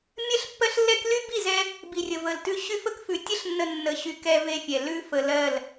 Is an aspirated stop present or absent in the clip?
absent